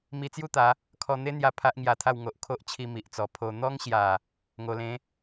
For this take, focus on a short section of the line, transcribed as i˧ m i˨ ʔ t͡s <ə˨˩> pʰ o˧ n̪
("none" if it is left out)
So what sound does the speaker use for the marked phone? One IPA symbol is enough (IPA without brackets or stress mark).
ɔ˨˩